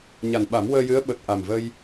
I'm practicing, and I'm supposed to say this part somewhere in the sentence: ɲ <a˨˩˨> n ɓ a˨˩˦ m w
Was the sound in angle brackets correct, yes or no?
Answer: no